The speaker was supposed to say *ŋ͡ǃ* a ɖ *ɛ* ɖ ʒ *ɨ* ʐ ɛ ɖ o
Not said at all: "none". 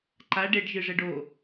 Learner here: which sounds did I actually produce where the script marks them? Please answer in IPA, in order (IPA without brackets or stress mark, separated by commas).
ǃ, e, ɨ